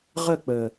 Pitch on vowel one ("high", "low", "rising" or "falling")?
falling